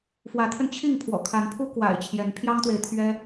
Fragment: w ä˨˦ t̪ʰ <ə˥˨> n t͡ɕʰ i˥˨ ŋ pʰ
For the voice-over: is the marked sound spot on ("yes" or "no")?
no